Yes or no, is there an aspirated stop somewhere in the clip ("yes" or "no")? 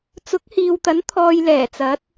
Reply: yes